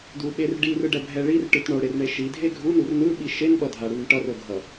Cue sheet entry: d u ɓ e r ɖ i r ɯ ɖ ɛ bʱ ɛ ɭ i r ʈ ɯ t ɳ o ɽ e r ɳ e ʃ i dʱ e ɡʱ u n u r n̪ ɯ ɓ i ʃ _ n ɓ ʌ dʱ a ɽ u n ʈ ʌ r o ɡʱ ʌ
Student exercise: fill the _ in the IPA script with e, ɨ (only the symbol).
e